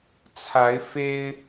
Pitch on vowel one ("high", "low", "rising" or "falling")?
rising